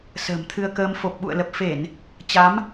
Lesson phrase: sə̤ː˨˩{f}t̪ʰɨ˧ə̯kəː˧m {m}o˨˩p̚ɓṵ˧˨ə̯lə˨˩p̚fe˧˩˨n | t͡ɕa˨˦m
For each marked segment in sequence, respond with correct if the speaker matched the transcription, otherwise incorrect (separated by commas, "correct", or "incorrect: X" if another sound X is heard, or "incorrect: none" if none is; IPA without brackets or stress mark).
incorrect: m, incorrect: f